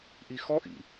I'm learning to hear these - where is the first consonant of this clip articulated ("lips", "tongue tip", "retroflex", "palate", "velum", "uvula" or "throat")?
throat